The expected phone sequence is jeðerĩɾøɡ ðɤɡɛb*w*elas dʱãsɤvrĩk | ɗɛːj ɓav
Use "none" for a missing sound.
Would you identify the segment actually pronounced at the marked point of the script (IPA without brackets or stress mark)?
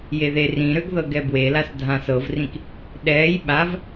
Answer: w